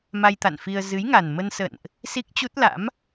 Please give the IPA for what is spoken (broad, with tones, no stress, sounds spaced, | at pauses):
m a˧ j t̪ a̰˧˨ n f i˧ ə̯ z ɨ˨˦ j ŋ a˨˩ n m ə˧ n s ə̰˧˨ n ʔ | s i˦˥ k̚ t͡ɕ u˦˥ t̚ l a̰˧˥ m